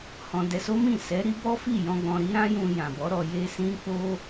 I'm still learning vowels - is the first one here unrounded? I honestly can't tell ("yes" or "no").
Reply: no